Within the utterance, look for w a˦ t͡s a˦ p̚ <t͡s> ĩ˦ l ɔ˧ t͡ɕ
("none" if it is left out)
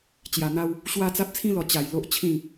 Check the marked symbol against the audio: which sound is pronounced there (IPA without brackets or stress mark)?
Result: t͡sʰ